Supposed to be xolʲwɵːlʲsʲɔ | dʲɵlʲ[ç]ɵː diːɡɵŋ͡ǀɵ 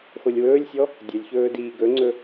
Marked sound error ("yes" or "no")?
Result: no